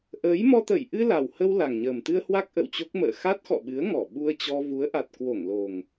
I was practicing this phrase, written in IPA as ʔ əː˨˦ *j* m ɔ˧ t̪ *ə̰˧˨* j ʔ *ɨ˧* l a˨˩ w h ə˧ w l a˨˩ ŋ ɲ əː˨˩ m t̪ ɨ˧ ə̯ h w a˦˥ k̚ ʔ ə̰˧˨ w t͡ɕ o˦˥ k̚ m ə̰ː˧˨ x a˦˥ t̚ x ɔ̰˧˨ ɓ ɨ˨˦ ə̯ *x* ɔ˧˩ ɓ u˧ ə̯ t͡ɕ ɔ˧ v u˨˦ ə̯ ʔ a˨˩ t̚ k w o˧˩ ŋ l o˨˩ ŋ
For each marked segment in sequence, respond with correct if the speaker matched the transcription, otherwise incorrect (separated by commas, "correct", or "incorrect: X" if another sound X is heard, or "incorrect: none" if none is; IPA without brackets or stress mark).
correct, incorrect: ə˧˩, correct, incorrect: ŋ